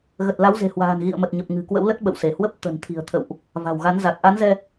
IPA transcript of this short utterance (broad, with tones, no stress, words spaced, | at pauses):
ɣə˨˩t̚la˨˦wze̤˨˩hwa̤ː˨˩n ɣḭ˧˨ə̯mə˨˩t̚ɲə˨˩p̚ ŋɨ̤˨˩kwə̰˧˥wlə˦˥t̚ ɓə̰˧˨wse˧˩ hwə˦˥p̚ t̪ə̤˨˩nt̪ʰi̤˨˩ə̯ t̪ʰə̰˧˨wʔ | va̤˨˩wɣa˨˦nza˨˩t̚ ʔa˨˦nzɛ˧